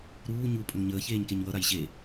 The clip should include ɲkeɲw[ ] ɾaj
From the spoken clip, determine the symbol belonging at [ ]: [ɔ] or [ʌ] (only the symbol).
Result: ʌ